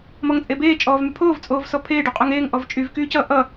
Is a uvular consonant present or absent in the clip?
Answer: present